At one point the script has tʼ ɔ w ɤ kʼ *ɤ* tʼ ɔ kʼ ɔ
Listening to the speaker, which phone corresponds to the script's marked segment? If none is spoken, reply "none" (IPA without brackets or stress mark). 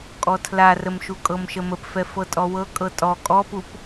ɤ